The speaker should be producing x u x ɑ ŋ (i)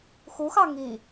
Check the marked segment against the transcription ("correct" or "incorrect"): correct